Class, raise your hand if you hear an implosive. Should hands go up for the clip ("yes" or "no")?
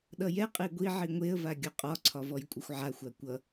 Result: yes